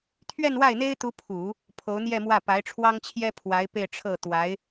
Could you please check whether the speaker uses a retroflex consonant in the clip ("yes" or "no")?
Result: yes